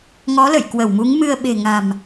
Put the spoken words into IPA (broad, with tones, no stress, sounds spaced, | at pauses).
ŋ ɔ˨˦ l ə̰˧˨ j k w ə˧˩ w m u˨˦ ŋ m ɨ˧ ə̯ ɓ e̤˨˩ ŋ a̤˨˩ m